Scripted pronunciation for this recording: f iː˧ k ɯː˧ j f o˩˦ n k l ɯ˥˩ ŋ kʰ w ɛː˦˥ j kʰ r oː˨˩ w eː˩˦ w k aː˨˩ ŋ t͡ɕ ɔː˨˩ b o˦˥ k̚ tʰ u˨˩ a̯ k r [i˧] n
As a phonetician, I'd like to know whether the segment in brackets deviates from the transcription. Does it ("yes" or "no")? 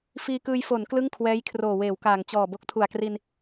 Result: no